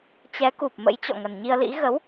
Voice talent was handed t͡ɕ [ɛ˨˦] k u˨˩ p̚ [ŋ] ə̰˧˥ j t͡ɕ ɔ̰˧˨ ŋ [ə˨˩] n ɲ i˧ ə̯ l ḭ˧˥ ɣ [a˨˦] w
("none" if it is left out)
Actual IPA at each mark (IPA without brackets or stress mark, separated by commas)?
ɛ˨˦, m, ə˨˩, ə˨˦